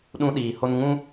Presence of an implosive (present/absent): present